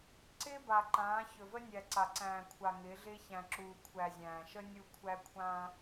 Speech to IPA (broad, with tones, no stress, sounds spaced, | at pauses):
ǀ ɪː˦ b a˨ ǃ ãː˨˦ ç ɵ˨ v ə˦ nʲ æ˨ ǀ a˨ ǀ æ̃ː˨ kʷʰ a˨ ŋ ɪː˨˦ ɮ ɪː˦ ç æ̃˨ ǁ uː˨ kʷʰ æ˨ zʲ æ̃ː˨ ʃ ə˦ nʲ u˦˨ kʷʰ æ˦ kʷʰ ãː˦